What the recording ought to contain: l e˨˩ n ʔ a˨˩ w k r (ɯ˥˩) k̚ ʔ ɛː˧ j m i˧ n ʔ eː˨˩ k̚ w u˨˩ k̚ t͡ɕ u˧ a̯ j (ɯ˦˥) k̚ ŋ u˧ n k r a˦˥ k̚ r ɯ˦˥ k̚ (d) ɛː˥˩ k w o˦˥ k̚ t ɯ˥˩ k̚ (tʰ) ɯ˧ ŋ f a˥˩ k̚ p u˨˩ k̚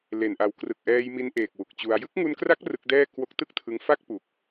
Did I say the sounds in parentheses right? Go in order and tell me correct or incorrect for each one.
incorrect: ɯ˨˩, correct, correct, correct

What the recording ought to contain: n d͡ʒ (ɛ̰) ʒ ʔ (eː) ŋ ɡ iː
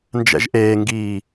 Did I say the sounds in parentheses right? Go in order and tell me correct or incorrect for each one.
correct, correct

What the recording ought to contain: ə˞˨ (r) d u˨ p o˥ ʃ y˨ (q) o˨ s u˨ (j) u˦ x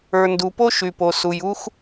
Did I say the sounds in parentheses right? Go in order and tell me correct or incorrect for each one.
incorrect: n, incorrect: p, correct

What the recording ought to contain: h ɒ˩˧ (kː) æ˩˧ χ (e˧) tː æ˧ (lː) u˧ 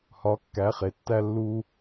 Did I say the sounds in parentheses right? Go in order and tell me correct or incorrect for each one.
correct, incorrect: e˩, correct

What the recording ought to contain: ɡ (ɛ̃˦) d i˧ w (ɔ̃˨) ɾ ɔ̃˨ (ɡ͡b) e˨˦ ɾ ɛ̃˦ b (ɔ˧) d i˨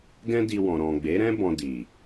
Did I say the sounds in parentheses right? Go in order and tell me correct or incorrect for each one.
correct, correct, correct, incorrect: ɔ̃˧

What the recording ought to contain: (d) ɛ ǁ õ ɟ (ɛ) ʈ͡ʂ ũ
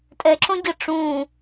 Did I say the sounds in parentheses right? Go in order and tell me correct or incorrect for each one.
incorrect: tʼ, incorrect: ɘ

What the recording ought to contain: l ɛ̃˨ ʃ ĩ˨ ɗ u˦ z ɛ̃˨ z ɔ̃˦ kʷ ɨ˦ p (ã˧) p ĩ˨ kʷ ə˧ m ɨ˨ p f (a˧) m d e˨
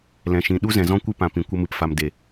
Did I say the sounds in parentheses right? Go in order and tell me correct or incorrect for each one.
incorrect: ã˨, incorrect: a˨

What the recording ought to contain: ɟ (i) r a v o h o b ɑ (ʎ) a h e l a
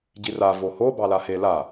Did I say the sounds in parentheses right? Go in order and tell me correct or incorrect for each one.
correct, incorrect: l

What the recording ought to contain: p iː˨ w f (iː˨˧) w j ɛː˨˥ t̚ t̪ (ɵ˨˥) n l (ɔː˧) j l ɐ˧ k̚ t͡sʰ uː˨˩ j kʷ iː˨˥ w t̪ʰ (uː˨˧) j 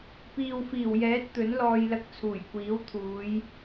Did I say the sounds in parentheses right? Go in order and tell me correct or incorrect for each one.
incorrect: iː˨˩, correct, correct, correct

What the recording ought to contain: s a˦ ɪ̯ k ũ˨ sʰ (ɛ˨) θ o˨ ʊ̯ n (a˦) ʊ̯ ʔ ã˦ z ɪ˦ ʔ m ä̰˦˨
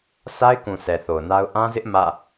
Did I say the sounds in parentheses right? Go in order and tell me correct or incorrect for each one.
correct, correct

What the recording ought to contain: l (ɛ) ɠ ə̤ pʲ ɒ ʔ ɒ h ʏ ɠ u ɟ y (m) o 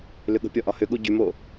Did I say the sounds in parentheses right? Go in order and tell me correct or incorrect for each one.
incorrect: ʏ, correct

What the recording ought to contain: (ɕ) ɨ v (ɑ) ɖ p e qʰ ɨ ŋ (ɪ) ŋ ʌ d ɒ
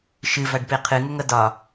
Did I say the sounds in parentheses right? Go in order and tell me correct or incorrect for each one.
incorrect: ʃ, incorrect: a, incorrect: ʏ

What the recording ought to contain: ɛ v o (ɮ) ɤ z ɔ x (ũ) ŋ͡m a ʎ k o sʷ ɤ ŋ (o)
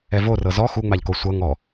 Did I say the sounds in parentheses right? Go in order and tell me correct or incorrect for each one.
incorrect: r, incorrect: u, incorrect: ɔ

